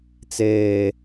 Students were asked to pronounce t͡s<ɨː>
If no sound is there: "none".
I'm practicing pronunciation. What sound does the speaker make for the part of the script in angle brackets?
eː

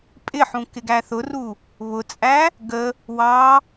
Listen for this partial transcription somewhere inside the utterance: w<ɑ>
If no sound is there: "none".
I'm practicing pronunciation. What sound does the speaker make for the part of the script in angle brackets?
ɑ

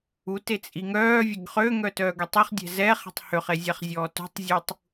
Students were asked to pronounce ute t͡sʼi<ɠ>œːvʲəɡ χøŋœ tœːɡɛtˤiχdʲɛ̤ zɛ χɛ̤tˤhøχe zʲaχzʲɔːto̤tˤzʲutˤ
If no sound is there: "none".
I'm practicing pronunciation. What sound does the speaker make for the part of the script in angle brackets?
ŋ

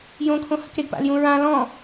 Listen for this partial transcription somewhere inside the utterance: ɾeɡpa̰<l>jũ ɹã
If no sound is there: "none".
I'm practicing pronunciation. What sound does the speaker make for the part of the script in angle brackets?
l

